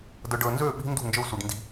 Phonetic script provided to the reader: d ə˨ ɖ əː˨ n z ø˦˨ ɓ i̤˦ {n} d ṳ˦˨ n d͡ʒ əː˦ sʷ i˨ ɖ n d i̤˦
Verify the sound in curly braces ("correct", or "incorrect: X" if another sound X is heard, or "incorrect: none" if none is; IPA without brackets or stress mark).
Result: correct